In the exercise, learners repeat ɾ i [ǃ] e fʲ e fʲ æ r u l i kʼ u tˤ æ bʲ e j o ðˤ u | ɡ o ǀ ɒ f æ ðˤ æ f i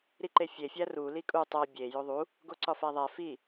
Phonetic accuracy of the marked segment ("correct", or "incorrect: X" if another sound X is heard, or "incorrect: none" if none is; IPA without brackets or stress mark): correct